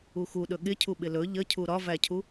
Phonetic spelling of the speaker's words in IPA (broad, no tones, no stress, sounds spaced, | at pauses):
u x u ɗ ɵ ɠ ɪ cʰ u ɓ ɪ l ɵ ʎ ə cʰ u ɾ ɒ v æ cʰ u